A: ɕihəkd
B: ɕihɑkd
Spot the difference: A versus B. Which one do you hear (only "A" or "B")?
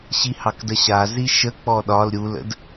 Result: B